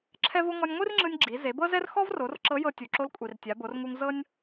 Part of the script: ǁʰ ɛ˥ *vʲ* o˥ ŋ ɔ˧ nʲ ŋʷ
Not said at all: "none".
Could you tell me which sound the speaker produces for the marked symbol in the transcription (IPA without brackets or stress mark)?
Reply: v